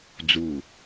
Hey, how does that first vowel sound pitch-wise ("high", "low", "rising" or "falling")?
falling